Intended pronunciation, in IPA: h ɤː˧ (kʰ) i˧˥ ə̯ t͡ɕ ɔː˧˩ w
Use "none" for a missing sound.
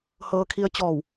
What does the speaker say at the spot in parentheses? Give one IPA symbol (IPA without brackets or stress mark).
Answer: kʰ